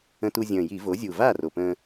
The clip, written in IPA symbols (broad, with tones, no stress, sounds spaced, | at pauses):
ə̃˧ t u˧ zʲ ə̃ː˨˩ j i˧˩˧ v o˩˥ zʲ u˨˩ v a˥˩ r o˨˩ p ə̃ː˧